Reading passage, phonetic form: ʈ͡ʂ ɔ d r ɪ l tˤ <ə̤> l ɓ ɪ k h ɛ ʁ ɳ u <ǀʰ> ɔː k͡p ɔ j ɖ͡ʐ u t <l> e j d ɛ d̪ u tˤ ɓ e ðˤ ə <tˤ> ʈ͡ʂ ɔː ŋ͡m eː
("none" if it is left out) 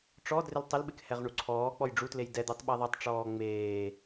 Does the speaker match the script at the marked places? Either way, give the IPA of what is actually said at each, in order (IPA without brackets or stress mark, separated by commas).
ə, ǀʰ, l, tˤ